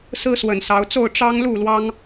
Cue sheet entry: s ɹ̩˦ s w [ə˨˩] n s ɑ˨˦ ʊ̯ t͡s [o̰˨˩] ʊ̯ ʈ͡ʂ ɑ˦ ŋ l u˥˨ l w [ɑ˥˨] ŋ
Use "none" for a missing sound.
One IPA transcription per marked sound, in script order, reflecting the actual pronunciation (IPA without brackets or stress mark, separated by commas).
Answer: ə˨˩, o˥˨, ɑ˦